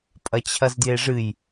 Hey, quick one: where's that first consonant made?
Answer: lips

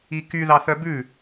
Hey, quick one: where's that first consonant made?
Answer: velum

